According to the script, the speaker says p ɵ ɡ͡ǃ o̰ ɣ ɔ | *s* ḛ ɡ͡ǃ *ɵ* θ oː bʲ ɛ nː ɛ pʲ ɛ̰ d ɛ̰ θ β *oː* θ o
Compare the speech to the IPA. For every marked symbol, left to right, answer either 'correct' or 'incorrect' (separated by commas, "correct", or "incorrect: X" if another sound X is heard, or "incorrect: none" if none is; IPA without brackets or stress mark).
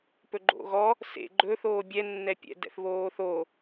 correct, correct, correct